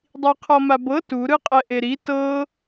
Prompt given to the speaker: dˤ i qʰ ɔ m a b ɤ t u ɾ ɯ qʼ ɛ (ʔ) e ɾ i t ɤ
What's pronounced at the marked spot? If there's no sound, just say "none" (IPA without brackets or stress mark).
ʔ